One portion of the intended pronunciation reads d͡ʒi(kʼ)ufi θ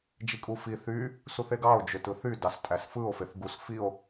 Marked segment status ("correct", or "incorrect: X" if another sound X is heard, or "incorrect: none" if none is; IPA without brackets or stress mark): correct